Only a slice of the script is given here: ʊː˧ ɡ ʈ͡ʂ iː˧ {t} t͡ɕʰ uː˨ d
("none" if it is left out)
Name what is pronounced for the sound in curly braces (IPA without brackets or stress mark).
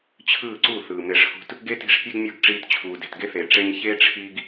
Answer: t